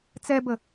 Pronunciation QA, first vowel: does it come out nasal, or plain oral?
oral